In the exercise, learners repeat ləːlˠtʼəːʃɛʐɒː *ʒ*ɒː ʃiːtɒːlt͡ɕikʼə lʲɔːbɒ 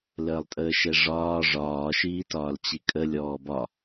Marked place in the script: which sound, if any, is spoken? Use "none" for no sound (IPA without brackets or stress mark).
ʐ